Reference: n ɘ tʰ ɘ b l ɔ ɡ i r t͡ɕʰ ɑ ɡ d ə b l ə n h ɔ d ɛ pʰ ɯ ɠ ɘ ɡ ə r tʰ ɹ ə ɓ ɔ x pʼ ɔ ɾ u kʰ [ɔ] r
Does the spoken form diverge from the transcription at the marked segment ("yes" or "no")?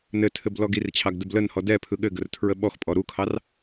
yes